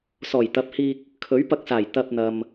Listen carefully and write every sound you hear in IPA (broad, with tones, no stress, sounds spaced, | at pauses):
s ɔː˨˩ j t̪ ɐ˨˥ p̚ h iː˧ k̚ | kʰ ɵ˨˥ ɥ p ɐ˧ k̚ s aː˨˩ j t̪ ɐ˧ p̚ n̪ ɐ˨ m